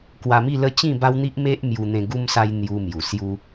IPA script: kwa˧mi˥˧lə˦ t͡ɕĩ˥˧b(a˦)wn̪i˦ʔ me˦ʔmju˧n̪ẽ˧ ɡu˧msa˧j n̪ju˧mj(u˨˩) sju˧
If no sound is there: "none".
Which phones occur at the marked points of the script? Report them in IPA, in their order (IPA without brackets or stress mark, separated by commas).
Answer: a˦, u˨˩